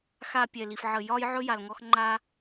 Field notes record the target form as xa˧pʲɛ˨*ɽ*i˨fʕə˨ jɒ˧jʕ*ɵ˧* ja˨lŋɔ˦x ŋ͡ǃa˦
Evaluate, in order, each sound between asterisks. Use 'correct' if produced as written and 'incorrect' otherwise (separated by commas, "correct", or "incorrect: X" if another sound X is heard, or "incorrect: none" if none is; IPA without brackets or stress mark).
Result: incorrect: l, correct